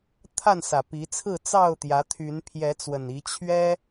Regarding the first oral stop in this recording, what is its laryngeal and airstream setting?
aspirated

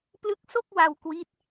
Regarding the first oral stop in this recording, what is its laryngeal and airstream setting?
plain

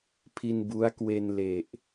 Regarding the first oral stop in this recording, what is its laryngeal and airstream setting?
aspirated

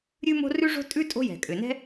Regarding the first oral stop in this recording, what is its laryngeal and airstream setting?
ejective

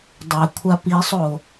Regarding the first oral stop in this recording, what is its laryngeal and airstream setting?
plain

